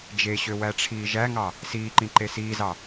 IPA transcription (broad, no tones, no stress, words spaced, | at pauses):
d͡ʒeɕø wæʈ͡ʂʰiːʒæŋɑ | siːǃĩ ǃesiːzɑ